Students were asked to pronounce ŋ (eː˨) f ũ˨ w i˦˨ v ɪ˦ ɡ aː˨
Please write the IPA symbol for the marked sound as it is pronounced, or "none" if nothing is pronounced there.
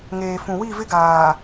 eː˨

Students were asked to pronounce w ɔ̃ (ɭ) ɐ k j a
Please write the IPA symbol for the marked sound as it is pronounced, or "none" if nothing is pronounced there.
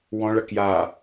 ɭ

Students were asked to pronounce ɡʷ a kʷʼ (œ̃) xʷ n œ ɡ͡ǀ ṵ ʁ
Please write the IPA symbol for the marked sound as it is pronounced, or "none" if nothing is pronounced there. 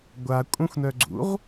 œ̃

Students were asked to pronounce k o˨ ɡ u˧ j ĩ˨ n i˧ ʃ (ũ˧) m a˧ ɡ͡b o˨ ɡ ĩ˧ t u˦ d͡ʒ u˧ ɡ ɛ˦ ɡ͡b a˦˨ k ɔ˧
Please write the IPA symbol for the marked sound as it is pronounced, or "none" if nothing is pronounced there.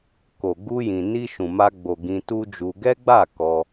ũ˨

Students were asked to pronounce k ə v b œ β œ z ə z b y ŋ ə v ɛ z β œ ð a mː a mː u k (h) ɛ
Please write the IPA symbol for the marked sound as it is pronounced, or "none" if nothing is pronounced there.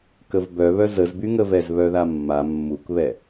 β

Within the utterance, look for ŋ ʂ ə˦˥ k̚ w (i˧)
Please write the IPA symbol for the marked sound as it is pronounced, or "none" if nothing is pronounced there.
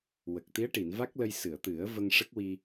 i˧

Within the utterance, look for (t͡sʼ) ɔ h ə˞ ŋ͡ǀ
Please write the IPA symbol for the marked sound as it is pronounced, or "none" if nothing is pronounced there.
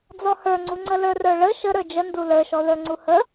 d͡z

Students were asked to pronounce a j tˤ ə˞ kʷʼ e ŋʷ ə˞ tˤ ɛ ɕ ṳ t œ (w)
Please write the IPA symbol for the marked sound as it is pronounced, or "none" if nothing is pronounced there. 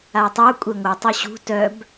b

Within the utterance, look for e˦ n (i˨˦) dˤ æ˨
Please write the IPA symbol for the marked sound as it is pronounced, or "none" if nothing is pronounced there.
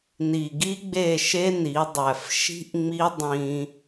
i˨˦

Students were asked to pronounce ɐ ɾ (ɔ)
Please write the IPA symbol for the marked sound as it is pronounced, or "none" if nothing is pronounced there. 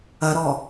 ɔ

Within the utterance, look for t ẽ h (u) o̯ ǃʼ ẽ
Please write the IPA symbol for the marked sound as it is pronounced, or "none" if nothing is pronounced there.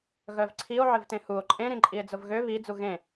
u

